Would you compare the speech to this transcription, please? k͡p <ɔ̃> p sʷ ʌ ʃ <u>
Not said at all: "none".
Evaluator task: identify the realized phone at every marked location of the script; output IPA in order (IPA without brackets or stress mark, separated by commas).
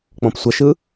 ɔ̃, ɯ